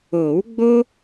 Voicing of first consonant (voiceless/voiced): voiced